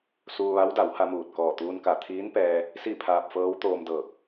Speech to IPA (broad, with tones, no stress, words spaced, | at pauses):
suː˧ʋa˧˥wda˩˧wha˧ muː˧˩t̚kɔː˧˩t̪uː˧nka˧˩ t̪ʰiː˧˥npɛː˧ | si˥˨pʰaː˧p̚fɤː˧˥w t̪oː˧mdɤː˧˩k̚